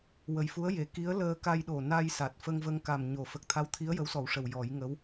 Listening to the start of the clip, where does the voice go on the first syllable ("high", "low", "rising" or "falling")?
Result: low